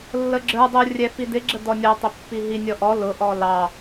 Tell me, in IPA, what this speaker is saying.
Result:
lː ə ɡ͡ǁ ə˞ dˤ u rʲ ɛ f i d ɪ ɡ͡ǁ ə d ɔ nʲ ɔ tˤ ɪ pː i ɦ i nʲ ɔ ʔ ɔ l ʊ ʔ ɔ l ɑ

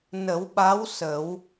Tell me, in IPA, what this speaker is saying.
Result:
n ə˨˩˦ w ɓ a˧˥ w s ə˨˩˦ w

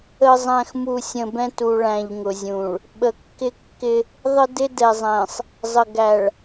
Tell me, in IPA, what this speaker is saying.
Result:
ə˨ zˤ æ̃˨ x m u˨ sʲ ə̃˨ b ɛ̃˦ t u˨ ɭ æ̃˨ ʎ ŋ ʊ˨ zʲ ũ˨ ɭ | ɓ ə˨ kː ɪ˦ kː ɪ˦ | ðˤ ə˦ d ɪ˦ d ɛ˨ zˤ æ̃˨ sˤ | zˤ ə˨ ɡ æ˨ ɭ

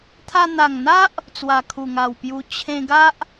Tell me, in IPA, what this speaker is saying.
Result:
t̪ʰ a˧ n̪ a˨˩ ŋ n̪ a˦ ʔ | t͡s w a˨˩ kʰ u˨˩ ŋ a˨˩ w p j u˧ t͡ɕʰ ẽ˧ ɡ a˦ ʔ

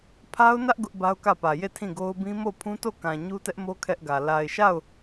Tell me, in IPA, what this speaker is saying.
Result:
pʰ a˦ ʊ̯ n ä˦ ʔ ɡ ʊ˦ ʔ b a˦ ʊ̯ k ä˦˨ p ä˨ j e˦˨ tʰ ĩ˦˨ ɡ o˦ ʊ̯ b ĩ˦ m o˦˨ pʰ ũ˦ t o˦˨ k ã˨ ɲ u˦ t ɛ˦ ʔ m o˦ kʰ ɛ˦ ʔ ɡ ä˨ l a˨ ɪ̯ ʃ a˦˨ ʊ̯

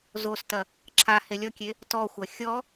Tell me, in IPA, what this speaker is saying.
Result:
z o s t ɐ | ǁʰ a h e lʲ ɔ kʲ e | t ɔ xʷ ɐ xʲ ɔ

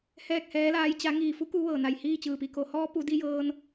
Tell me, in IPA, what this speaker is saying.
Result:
h ɛː˥˨ k̚ h ɛː˧˥ l aː˧˥ j t͡ɕ a˧˥ ŋ iː˧˩ f u˧˥ k u˧˥ ʋ ɤː˧˩ n a˧˩ j h iː˥˨ t͡ɕ ɯː˧˩ p i˧ k o˩˧ h ɔː˧˥ p u˩˧ d i˧ j ɤː˧ n

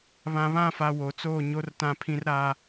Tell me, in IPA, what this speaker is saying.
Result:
β ã˨ β ã˦˨ f a˨ w o˨ t͡s oː˦˨ ɲ o˦ r t ã˦ pʰ ĩ˦ r ɾ a˦

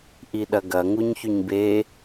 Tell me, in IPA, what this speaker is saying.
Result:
ʔ i ɗ ɐ ɡ ɐ ŋ u ɲ ç y ɲ b e

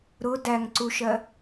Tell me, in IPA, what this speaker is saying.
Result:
ɾ ʊ d æ ŋ ǀ u ʃ ɜ

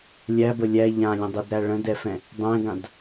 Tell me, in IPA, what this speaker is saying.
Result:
lʲ æ b ə lʲ æ ʎ ã lʲ ə̃ dˤ ɛ d ɾ æ ɭ ə̃ d ɛ f ɛ̃ | dˤ ɛ̃ ɡ ã d

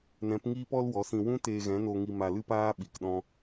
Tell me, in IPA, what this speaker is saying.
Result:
n ɛ̃˨˦ p ŋ iː˦ p ɔ˦ l w ɔ˨˦ s ĩ˧ w ũ˦ t eː˧ ɣ ɛ̃˨˦ n o˧ ŋ i˧ m a˧ l ɨ˦ p aː˦ ɓ i˧ k ɗ ɔ̃˦

